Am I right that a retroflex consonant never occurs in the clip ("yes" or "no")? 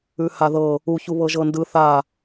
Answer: yes